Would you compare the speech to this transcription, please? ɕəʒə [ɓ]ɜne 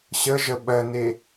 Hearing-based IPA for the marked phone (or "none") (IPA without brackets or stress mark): ɓ